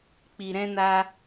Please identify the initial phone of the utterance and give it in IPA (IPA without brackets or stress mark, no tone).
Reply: k͡p